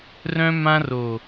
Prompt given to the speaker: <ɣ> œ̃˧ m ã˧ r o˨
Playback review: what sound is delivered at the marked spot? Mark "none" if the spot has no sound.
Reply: r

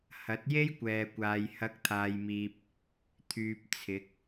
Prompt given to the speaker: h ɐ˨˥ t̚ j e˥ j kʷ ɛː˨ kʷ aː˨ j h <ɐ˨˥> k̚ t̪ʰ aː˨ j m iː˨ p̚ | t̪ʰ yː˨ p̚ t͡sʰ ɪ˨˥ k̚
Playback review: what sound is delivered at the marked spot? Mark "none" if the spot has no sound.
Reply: ɐ˨˥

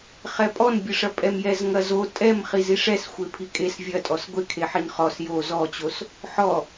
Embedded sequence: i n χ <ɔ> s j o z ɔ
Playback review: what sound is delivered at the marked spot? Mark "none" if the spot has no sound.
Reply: ɔ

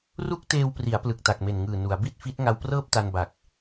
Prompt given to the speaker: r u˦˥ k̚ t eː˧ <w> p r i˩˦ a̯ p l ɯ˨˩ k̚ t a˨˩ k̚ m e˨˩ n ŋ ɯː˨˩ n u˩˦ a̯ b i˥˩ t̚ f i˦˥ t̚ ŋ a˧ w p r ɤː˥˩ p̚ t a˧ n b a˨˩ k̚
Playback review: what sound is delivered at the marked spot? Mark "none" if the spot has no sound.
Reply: w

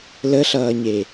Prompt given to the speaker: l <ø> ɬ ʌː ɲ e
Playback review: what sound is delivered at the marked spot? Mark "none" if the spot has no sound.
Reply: ə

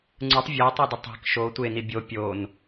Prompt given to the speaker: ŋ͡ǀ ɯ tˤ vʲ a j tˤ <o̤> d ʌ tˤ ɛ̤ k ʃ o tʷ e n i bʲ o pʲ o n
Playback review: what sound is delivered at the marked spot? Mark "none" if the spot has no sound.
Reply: o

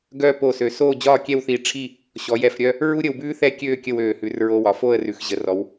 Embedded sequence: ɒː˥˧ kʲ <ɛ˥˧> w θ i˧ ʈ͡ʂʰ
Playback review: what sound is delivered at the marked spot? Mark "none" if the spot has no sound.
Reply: ɛ˥˧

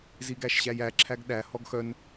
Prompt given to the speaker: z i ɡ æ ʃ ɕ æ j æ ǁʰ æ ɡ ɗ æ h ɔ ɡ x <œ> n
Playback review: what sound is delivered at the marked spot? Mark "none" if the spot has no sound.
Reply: œ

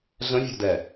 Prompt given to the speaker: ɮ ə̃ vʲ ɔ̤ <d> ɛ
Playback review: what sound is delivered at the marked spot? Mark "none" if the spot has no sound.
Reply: d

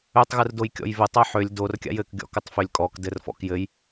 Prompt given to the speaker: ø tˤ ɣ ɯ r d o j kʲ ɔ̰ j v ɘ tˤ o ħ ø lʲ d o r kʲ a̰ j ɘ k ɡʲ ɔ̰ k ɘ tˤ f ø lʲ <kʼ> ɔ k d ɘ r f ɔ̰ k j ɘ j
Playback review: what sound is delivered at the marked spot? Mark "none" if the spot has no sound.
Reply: kʼ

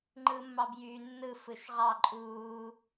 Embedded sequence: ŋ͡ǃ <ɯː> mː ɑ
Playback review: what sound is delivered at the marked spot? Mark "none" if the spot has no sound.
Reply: ɯː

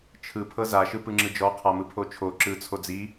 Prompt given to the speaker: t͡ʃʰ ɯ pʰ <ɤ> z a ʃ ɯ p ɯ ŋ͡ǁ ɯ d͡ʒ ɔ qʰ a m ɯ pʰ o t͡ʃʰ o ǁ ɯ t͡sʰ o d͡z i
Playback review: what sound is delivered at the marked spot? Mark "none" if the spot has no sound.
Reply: ɤ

